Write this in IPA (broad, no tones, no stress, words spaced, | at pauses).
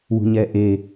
wṳɲɛʔe